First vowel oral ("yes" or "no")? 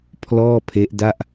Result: yes